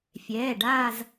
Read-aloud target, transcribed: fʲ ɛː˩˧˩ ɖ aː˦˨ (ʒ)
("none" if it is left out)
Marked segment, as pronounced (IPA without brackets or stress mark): z